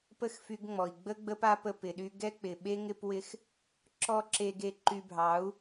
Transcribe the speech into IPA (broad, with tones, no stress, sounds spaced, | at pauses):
p ə˦˨ x f y˧ ɡ ŋ͡m ɔ˨ i̯ ɡ͡b ə˦ ɡ͡b ə˦ p a˦ p ə˧ p ɪ˨ ɗ y˧ ɡ ɛ˦ k͡p ɪ˨ ɓ e˦ ŋ ɪ˦ p w ɪ˦ x | ǁ ɔ˦ ǁ e˧ ɡ e˧ ǃ y˧ bʱ ɑ˨˦ u̯